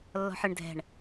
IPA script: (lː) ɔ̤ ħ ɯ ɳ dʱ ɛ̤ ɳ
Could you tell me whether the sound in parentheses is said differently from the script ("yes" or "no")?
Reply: no